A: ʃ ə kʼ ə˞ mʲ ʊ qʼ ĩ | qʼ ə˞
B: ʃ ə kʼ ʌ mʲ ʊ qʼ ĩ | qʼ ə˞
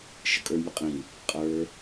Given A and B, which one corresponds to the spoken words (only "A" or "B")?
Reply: A